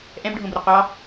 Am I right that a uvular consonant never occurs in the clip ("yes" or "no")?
no